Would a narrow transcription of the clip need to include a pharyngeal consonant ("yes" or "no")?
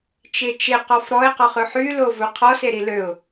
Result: yes